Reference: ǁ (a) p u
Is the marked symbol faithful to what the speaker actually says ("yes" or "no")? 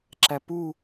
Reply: no